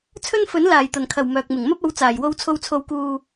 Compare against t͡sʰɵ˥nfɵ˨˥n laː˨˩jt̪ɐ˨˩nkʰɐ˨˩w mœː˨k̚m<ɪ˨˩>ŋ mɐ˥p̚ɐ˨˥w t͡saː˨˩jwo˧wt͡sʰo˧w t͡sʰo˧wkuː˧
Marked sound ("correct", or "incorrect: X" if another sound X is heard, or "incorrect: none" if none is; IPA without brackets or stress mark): correct